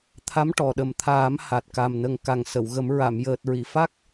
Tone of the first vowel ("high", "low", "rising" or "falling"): rising